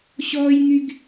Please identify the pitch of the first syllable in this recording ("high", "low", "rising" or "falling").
high